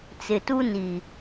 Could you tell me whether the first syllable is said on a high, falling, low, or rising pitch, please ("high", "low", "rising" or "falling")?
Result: low